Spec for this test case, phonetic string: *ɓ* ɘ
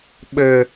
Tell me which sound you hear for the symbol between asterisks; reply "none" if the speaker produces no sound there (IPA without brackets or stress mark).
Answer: ɓ